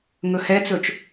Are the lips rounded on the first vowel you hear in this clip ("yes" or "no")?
yes